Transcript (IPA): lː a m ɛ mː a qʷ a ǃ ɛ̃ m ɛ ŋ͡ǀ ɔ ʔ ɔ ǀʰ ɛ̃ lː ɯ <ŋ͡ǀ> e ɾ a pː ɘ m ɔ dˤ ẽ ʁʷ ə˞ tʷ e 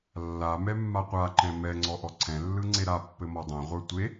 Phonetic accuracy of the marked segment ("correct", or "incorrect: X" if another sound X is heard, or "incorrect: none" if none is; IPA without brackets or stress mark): correct